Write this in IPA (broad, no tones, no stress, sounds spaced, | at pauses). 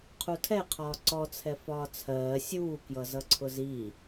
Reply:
qʰ u tʰ ɛ qʰ ɒː ǀ ɔ t͡sʰ ɛ f ɒː t͡sʰ ɜː sʲ uː k j ʌ z ʌ ǀʰ ʊ z i